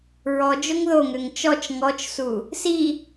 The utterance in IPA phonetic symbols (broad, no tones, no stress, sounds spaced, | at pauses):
ɹ ɔ d͡ʒ o ŋ ð o ŋ ø ŋ t͡ʃ ɔ t͡ʃ ŋ ɔ t͡ʃ s u | s i